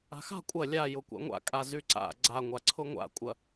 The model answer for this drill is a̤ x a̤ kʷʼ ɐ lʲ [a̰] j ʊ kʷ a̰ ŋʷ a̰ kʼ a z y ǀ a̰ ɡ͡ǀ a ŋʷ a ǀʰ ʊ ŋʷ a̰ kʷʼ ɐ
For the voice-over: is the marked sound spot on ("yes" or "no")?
no